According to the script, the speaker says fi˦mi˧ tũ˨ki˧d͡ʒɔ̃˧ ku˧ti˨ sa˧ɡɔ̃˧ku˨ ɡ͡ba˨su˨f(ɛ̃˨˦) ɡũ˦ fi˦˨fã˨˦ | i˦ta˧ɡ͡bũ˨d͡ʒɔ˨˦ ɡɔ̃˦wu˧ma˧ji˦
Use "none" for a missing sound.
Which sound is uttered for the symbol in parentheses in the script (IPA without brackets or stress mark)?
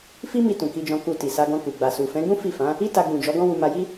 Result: ɛ̃˨˦